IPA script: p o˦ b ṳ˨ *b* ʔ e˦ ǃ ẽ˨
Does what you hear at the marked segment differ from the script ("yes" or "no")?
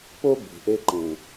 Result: yes